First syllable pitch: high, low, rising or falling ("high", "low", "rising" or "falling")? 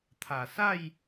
low